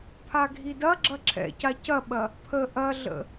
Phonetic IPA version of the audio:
pʰ a ɡʱ i d ɐ ɡ͡ǁ ɐ ǁʰ ɛ̰ c a c ɐ ɓ ɐ | pʰ ə ʔ ɐ ɮ ə̰

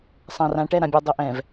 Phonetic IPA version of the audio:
sˤ ã˨ r ã˨ ʈ ɛ˦˨ ɾ ã˨ bʲ ɛ˨ dˤ ɘ˨ ʔ ɛ̃˨ v

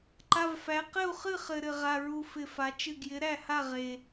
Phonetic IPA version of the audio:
ǃ a˩˧˩ v f æ˩˧ q ɘ˥˩ u̯ χ ɨ˥˩ χ ɘ˩ ɾ ɘ˩ ʁ a˩˧˩ ɹ u˧˩ f ɪ˧˩ f a˩˧ t͡ʃ ɨ˧˩ ɡ j ɪ˩˥ ɾ æ˥˩ h a˥˩ ʁ e˩

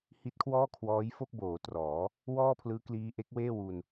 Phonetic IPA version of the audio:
h i˦˥ t̚ kʰ w ɔː˥˩ kʰ w ɔː˦˥ j f o˥˩ k̚ b oː˩˦ t r ɔː˩˦ | w ɔː˥˩ pʰ l ɯː˦˥ k l iː˦˥ ʔ e˦˥ k̚ w eː˥˩ w u˧ n

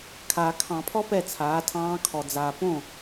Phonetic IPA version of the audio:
kʰ aː˨ kʰ ɑ̃˨˩˦ pʰ ɔ˥ p ɛ˥˩ t͡sʰ aː˩˥ tʰ ɑ̃ː˧˥ kʰ ɔ˨ d͡z aː˨ p õ˥˩

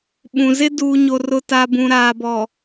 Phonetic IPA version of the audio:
ɓ ũ˨ z ɪ˦ d uː˨ ɲ o˨ r ʊ˨ t a˨ b ũ˨ ɾ aː˨ b ɔ˨

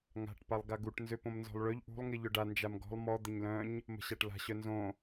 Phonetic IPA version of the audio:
ŋ a̤ ʈ p a lˠ ɡ a ɡ u ʈ n z ø p õ m n z ɔ̤ lˠ ɭ ø ʎ ʔ ṳ lˠ ŋ i ʎ œ ɖ a n d͡ʒ a m ɡ ɔ̤ lˠ m ɔ d̪ ə ɲ l œ̃ ɲ | m ə̤ ɕ a ʈ l a̤ ɕ œ n z õ

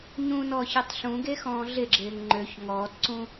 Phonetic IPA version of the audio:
ɲ ũ n ɔː ç e tˤ ɬ ũ ɡ e x ɔ̃ː ɮ ɪ ɡ͡ǁ ɪː ŋ ŋ͡ǃ ø ç ŋ ɔː t ǀ ũ

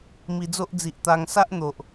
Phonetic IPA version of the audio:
m i˧ d͡z o˦ ʔ d͡z i˨ ʔ t̪ a˧ ŋ s a˦ ʔ n̪ o˨ ʔ

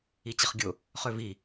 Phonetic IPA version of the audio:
i t͡ɕ ə χ ɡʲ ʊ | χ ø v i

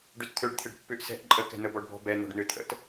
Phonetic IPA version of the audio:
ɖ ø t t̪ʰ ø ɖ t̪ʰ ɪ ɖ pː ʏ ʔ s ɛ̤ ʔ ǃʼ ə k ɛ̤ n̪ ə b ɔ ɖ b ɔ̤ b ɛ n̪ ɔ̤ ɖ n̪ ø t̪ʰ ə̰ t

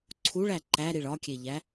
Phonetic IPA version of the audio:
ǀʰ u ɭ æ ǃ æ ɾ i ɭ ɒ kʲ e ʎ æ

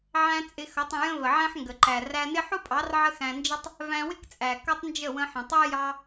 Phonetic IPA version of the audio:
ʕ æ̃˧ t͡sʼ ɪ˧ x ʌ˨˦ tˤ ə̃˧ j ə̃˦ v ə˨ ʕ æ̃˦ ħ ŋ ɡ ə˨ ǃ æ˨ r æ˧ n ɪ˦ ħ ʊ˦ pʼ ɑ˨˦ r ʕ ə˦ x æ̃˧ n d͡ʒ ə˦ tˤ | v æ̃˧ w ɪ˦ k t͡sʼ æ˨ k ʌ˦ tˤ n d͡ʒ ə˦˨ w ə̃˧ ħ ə̃˨ tˤ æ˦ j ɑ˧

